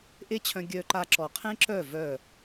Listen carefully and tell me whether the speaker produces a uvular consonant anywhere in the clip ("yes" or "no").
yes